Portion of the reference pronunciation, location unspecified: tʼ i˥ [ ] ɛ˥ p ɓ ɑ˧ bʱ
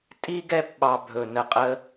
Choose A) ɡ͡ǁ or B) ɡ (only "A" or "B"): B